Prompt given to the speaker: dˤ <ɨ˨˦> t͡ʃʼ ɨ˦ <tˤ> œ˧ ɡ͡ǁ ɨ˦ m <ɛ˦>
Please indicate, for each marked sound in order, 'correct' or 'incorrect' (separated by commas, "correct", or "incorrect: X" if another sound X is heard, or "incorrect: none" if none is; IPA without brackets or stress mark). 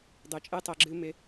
correct, correct, incorrect: ɪ˦